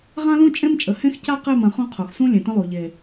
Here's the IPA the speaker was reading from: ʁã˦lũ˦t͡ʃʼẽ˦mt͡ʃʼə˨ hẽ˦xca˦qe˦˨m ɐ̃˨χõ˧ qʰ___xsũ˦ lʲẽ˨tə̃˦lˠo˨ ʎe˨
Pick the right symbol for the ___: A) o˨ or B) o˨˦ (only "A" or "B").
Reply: A